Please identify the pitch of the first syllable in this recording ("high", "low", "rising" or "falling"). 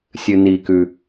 low